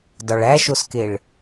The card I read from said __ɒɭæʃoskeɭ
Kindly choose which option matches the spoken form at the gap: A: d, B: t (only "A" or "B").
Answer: A